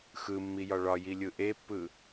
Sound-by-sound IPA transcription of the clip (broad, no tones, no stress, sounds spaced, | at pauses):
x ɯ mː i j ɒ ɭ ɒ j i lʲ ɯ ʔ e pː ɯ